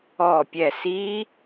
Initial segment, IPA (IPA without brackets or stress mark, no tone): ɔ